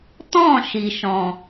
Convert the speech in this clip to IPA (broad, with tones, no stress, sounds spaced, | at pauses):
t ɔ̃˦˨ ʃ i˨ ʃ ɔ̃˨